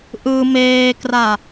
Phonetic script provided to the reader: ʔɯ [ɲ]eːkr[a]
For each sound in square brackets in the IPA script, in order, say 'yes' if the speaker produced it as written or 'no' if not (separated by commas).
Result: no, yes